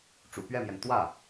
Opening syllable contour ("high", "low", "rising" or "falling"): low